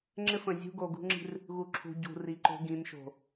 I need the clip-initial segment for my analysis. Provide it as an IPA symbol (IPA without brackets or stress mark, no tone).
ŋ͡ǁ